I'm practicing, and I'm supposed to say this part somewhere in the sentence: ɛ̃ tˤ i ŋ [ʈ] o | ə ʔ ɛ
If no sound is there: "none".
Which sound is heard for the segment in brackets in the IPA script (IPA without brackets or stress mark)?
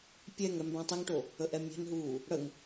ʈ